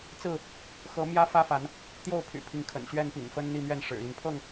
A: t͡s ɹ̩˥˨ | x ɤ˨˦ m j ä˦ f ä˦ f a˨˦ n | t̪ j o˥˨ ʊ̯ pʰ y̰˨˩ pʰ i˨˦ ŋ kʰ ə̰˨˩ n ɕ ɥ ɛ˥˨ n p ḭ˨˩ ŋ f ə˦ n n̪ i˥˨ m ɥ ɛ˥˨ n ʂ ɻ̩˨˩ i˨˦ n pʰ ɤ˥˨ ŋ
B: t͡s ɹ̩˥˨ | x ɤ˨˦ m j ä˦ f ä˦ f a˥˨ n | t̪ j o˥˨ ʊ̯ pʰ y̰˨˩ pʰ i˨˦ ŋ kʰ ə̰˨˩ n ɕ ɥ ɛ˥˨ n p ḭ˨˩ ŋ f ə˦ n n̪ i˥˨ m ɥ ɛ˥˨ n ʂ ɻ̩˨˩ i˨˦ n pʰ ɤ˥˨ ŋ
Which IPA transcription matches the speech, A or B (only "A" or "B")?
A